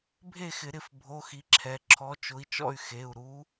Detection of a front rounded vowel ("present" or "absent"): present